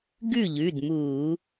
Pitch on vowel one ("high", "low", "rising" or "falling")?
falling